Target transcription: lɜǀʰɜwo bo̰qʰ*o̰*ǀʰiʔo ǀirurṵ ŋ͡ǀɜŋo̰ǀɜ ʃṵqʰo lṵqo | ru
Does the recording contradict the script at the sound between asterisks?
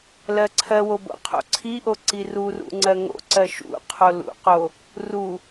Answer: no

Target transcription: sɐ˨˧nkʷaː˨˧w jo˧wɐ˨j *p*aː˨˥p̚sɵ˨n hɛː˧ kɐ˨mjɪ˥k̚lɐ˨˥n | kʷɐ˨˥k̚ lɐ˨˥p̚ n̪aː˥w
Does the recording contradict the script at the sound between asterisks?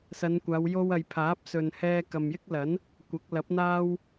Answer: yes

